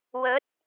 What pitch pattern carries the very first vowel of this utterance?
rising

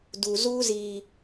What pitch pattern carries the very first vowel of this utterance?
low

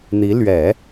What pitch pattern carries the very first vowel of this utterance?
rising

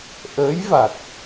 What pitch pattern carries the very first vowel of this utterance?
rising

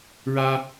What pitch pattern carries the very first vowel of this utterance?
high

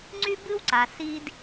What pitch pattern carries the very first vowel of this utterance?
high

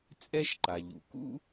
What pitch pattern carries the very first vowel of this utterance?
high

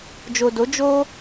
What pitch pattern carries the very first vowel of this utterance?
low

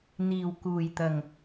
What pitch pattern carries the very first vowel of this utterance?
low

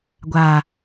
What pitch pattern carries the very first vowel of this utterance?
low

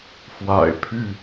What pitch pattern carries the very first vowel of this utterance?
low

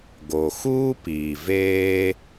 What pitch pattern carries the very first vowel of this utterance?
low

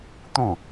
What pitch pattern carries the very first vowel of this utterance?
falling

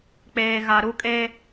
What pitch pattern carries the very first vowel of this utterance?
low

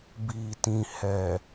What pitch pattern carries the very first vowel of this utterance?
low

